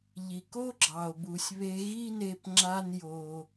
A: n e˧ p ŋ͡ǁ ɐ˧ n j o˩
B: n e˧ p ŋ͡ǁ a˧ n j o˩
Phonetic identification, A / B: B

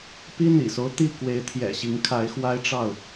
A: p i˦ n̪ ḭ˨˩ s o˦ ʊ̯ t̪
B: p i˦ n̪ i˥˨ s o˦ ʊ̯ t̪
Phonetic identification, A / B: A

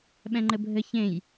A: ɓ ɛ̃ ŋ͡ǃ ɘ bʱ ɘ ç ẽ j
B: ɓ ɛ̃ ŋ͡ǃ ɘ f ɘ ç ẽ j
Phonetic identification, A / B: A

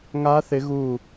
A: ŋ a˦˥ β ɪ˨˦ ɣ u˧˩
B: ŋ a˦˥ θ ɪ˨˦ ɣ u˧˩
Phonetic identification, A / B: B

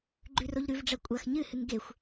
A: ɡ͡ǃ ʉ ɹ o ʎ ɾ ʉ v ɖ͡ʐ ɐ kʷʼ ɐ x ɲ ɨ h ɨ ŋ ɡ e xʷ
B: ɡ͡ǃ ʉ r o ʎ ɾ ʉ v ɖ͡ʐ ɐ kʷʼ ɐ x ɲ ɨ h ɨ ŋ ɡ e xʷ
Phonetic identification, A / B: B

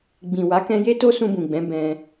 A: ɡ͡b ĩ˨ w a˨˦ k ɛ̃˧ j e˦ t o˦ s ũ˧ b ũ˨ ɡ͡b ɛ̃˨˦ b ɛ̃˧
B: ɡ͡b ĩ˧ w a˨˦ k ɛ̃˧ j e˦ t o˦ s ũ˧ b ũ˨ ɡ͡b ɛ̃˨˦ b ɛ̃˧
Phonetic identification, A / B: A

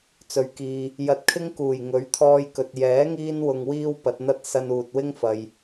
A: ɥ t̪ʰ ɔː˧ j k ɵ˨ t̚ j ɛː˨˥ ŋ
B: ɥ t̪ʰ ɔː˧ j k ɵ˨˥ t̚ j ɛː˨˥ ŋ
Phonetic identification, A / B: A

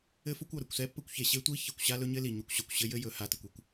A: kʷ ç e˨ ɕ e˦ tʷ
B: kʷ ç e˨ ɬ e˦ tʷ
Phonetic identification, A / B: A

